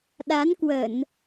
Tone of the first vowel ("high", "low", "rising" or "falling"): rising